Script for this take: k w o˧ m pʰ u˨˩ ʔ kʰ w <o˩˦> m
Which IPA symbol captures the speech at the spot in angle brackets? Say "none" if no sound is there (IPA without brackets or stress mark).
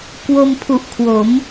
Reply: o˩˦